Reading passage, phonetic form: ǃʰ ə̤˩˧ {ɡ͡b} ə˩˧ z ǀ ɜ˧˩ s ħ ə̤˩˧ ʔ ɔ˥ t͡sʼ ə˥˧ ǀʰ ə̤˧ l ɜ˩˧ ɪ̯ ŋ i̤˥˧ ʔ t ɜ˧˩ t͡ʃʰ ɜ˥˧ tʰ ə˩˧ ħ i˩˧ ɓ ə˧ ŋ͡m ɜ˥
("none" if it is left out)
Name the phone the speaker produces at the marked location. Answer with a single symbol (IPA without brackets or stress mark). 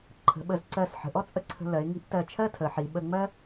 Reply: ɓ